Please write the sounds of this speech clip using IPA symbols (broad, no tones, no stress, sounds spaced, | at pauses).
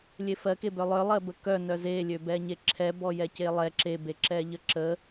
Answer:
lʲ e f ɜ k e b œ lˠ œ lˠ ɜ b ə k œ n œ z e lʲ ø b ɛ ɲ e ǁʰ ɛ b ɔ j ɛ c e lˠ ɛ ǁ e b e ǁ ɛ ʎ ə ǁ ə